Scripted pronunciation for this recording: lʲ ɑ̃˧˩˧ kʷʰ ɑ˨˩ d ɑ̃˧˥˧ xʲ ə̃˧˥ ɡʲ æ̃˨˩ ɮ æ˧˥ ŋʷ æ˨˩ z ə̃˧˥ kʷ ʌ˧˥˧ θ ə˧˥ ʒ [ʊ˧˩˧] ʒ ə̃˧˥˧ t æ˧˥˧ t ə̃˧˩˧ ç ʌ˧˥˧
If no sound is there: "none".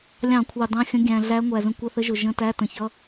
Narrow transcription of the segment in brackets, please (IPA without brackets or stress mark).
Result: ʊ˨˩